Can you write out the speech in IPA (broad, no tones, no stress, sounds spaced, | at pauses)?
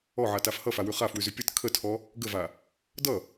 ɔ ʕ a t a f h ʌ f a w ʉ χ a f w ʉ z ʉ pʲ ʌ t kʰ ə tʰ ɔ | ɡ ə v a | d ʌ